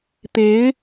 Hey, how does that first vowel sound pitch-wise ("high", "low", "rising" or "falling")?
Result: rising